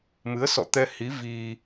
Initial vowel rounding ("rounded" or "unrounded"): unrounded